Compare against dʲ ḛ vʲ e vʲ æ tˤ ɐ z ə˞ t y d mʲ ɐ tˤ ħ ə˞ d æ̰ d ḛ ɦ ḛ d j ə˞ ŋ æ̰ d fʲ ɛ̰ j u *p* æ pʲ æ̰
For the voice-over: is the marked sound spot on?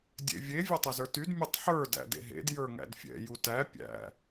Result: no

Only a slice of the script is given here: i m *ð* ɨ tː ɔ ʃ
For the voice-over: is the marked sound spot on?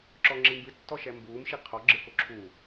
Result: no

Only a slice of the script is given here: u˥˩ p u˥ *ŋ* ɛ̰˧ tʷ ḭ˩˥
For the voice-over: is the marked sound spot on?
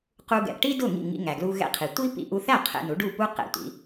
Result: no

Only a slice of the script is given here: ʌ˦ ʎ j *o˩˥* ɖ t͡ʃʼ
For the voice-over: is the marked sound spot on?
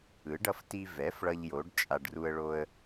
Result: yes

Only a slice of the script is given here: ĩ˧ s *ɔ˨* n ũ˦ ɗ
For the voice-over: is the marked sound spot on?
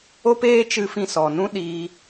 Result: yes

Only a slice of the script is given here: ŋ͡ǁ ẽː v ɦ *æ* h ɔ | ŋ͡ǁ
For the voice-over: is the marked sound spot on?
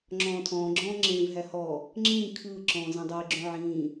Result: yes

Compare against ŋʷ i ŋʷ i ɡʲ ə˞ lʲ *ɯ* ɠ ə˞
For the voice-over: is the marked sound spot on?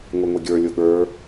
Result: no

